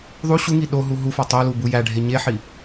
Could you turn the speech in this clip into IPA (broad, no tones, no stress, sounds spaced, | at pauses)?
ðˤ u ɕ u ŋ i ɗ o ɦ u ɦ u f ɒ tˤ o l u b u j æ ɖʱ e ɲ e ħ i